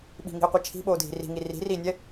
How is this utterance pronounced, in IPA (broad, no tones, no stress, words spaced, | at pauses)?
ɓi̤ŋi̤ə̯qʷɛ t͡ʃʰi̤ɓoːdʱi̤ ri̤ŋi ri̤riːnʲɛ